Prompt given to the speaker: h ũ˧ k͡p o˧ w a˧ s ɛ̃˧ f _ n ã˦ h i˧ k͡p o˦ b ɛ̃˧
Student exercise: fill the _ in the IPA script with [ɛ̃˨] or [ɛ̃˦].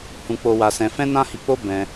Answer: ɛ̃˦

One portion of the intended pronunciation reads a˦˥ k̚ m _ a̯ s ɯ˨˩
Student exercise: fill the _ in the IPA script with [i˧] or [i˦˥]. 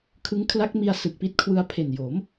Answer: i˧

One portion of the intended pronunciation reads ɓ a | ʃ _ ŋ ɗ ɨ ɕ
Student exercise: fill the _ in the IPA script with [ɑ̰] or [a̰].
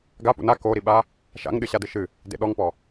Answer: a̰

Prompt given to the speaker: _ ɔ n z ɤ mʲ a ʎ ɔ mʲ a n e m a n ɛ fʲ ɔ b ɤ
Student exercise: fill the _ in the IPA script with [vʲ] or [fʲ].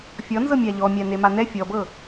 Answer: fʲ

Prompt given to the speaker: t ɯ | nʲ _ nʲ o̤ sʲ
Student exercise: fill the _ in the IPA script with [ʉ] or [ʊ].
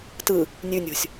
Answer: ʉ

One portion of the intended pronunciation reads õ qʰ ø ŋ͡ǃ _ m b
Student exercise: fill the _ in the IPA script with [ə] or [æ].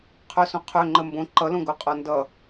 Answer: ə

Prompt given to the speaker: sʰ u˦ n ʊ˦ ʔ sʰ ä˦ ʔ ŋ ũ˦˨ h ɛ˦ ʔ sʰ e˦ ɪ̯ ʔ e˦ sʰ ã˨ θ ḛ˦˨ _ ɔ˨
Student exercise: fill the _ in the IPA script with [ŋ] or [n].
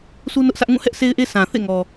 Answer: ŋ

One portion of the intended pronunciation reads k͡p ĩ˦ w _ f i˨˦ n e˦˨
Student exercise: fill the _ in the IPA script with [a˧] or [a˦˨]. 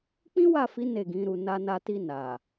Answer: a˦˨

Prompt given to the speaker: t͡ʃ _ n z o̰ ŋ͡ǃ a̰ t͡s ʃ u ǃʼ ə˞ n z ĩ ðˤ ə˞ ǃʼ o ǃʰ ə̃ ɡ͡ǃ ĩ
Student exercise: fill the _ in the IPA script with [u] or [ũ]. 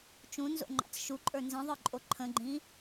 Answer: ũ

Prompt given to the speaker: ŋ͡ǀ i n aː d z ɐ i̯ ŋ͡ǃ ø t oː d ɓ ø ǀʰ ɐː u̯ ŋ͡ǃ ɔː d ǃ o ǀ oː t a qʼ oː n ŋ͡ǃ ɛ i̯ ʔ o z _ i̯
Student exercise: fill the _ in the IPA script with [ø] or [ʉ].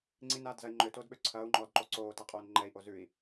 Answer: ʉ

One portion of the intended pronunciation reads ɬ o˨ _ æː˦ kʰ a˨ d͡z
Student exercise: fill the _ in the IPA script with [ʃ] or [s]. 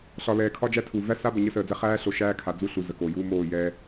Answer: ʃ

